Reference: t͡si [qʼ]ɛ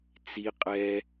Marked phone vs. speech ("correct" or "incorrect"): correct